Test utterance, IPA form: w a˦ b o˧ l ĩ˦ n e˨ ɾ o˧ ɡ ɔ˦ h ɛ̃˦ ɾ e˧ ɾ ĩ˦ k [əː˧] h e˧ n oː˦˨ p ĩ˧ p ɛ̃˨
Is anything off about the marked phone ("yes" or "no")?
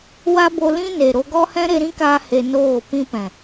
yes